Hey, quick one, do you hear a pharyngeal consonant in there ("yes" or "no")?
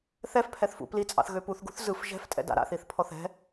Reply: no